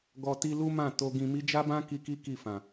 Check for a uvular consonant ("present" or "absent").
absent